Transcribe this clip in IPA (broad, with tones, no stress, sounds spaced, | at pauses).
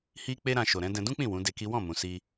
h i˧ k͡p e˦ ɾ ã˧ ʃ o˨ ɾ ɛ̃˨˦ d ɛ̃˧ d ũ˦ k͡p ĩ˦˨ w ũ˨˦ d e˧ k i˦ w ɔ̃˦˨ m ũ˨ s i˧